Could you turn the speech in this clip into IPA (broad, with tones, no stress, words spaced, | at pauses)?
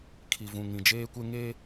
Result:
kʰi˨vũ˨ ŋĩ˨d͡ʒeː˦kʷe˦ ŋe˦